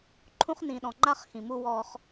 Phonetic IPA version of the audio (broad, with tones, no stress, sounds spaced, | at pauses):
ǃʰ ũ˦ χ n ĩ˨ ɗ ɔ̃˨ ŋ͡ǃ a˦ χ x ĩ˨ m u˦ w ɔ˦ χ